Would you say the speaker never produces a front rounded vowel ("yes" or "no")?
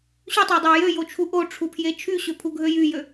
no